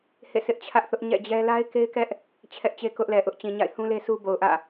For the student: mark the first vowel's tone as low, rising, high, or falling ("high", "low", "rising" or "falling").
falling